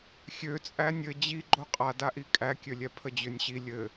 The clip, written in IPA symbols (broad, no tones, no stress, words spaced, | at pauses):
xʲøt͡sʼæ nʲɘ d͡ʑi ɡ͡ǃoqʼadaʔi kʼækʲølʲɛ pʰəd͡ʑønʲɕi lʲɘ